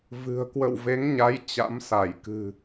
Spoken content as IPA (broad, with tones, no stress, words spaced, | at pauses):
vɨ̤˨˩ə̯ kwə̰˧˨wve˨˦ŋɲa˨˦j t͡ɕa̰˧˥msa˧˩j kɨ̤˨˩